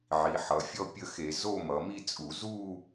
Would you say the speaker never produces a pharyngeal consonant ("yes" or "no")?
no